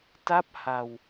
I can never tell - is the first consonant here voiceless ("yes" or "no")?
yes